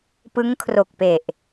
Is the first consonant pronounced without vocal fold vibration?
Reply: yes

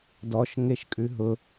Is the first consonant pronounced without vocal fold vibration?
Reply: no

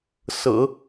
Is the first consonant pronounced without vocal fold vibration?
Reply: yes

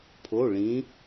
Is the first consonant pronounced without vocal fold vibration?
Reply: yes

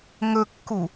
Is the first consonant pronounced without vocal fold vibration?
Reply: no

